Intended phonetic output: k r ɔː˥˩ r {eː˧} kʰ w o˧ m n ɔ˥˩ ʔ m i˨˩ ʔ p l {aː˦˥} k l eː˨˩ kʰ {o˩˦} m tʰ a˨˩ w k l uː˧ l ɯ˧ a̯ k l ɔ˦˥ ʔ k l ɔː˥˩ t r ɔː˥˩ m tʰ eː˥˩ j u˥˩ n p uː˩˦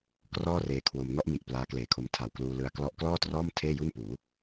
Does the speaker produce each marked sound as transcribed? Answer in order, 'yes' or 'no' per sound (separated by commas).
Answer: yes, yes, no